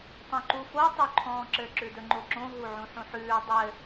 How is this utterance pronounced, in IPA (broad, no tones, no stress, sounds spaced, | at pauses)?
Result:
tˤ õ ǃ u f o tˤ ʉ ǃʰ ɔ̃ː ǁ ɘ ǁ ʉ d ɵ ŋ͡ǃ o ǁ õ ɦ u ʕ ũ ħ ũ ħ ʉː dˤ ɘ